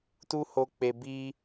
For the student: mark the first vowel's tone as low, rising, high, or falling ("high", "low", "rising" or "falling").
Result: high